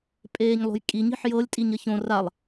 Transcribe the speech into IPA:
pʼ eː ɲ lˠ o̤ j kʼ i ɲ i̤ ħ j ɤ lʲ tʼ i ɲ ə ç õ r a lˠ

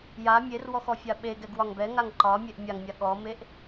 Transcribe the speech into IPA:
j a mʲ e r w ɔ x ɔ fʲ a ɓ e ɡ ɛ ɡ w ɒ ŋ b ɛ ŋ a ŋ ǃ ɒ mʲ e ʔ mʲ a ŋ mʲ a ɠ ɔ m e ʔ

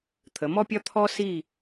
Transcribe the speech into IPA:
t̪ʰ ə˩˧ m ɔ˥ pʲ ɒ˥ t̪ʰ ɔ˥ s i˥˧

